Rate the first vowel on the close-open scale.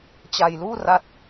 open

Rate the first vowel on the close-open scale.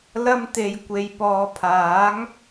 open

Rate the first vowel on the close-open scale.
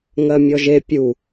mid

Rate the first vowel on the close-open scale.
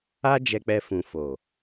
open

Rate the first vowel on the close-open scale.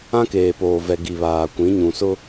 open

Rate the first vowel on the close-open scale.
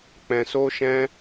mid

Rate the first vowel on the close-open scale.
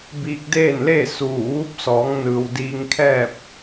close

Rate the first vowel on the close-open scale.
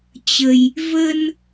mid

